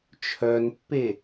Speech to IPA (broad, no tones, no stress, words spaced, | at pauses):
t͡ʃʰœnpːe